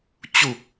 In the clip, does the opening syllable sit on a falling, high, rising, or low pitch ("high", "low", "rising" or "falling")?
low